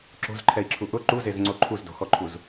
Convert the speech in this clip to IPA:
ǁ o̤ z ǃʰ ɛ i̯ ǁʰ u ʔ ʊ ǃ u z e z ŋ͡ǀ o ǃʰ u z d o̤ x ɔ ǃʰ u z

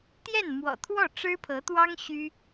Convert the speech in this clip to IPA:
t̪ j ɛ˥˩ n m w ɔ̰˨˩ t̪ʰ w ɔ˥˩ ʈ͡ʂ ɻ̩˥ pʰ ɤ˧˥ t̪ w ɑ˥ ŋ ɕ y˥

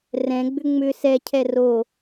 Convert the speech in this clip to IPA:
r ɛ̃ ɡ͡b ʏ ŋ͡m ʏ s ɛ cʰ ɛ r o

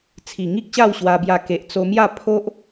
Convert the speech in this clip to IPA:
t͡sʰ i˨˩ ŋ i˦ k̚ ɕ a˥˧ w ɕ w a˧ b j a˧ k e˨ ʔ t͡s o˧ m j a˥˧ pʰ o˦ ʔ

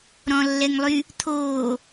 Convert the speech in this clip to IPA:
ɾ ɔ̃ lː ɛ ŋ lˠ y | t̪ʰ oː

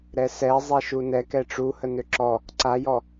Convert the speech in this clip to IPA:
ɾ ɛ s ɛ zˤ ɛ ʃ u n ɛ k ɛ ʈ͡ʂ u h ə n ø ǁ ɔ | ǀ a j ɔ

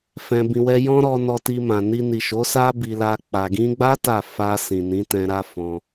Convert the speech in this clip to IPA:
f ɛ̃˧ b ĩ˧ w ɛ˦ j ɔ̃˦ ɾ ɔ˧ n ɔ˧ t i˧ m ã˨ n i˧ n i˨ ʃ o˨˦ s a˦ b i˧ l a˧ k͡p a˨ ɡ ĩ˧ ɡ͡b a˦ t a˦˨ f a˧ s ĩ˨ n ĩ˨˦ t ɛ̃˧ ɾ a˦ f ɔ̃˧

